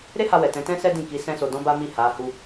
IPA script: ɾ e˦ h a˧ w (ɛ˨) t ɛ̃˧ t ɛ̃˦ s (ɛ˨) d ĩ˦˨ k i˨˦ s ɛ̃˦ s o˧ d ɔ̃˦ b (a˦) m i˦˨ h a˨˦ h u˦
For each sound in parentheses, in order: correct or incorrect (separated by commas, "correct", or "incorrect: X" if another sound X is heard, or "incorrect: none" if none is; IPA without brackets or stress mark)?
correct, incorrect: ɛ˦, correct